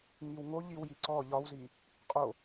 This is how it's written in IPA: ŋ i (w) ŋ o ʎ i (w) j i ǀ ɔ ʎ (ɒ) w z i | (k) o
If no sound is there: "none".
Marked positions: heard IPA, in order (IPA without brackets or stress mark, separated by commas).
w, w, ɒ, qʼ